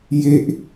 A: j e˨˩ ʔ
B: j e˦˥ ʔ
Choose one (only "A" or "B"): B